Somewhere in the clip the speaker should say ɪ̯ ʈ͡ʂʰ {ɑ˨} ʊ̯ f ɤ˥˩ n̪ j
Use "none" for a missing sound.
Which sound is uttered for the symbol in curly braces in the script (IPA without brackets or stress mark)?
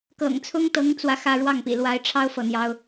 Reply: ɑ˥